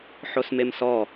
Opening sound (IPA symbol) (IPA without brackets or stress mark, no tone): ħ